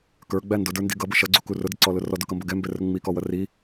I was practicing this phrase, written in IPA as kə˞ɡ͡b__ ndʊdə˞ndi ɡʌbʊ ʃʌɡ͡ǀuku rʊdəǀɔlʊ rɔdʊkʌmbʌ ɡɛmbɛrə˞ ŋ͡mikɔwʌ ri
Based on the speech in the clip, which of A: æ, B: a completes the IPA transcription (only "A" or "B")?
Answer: A